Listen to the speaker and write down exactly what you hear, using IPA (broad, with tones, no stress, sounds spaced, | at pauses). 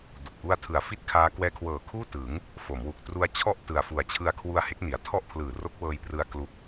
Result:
d u˨˩ k̚ ʔ u˥˩ a̯ tʰ ɯ˨˩ a̯ f i˥˩ t̚ kʰ aː˦˥ k w ɛː˦˥ kʰ w ɤː˨˩ kʰ uː˥˩ t ɯ˩˦ ŋ | f o˩˦ m w u˨˩ k̚ t r u˦˥ a̯ t͡ɕʰ ɔ˥˩ ʔ t ɯ˨˩ a̯ f u˨˩ a̯ t͡ɕʰ ɯ˧ a̯ kʰ w u˧ a̯ h e˦˥ k̚ n i˩˦ a̯ tʰ ɔ˥˩ ʔ pʰ l ɯː˨˩ r o˦˥ k̚ w ɤː˧ j p r ɯ˧ a̯ k l u˦˥ k̚